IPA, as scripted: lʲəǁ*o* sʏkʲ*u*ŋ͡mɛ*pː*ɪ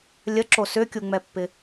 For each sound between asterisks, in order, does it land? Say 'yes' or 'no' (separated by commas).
yes, yes, yes